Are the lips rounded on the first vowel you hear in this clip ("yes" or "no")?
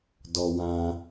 yes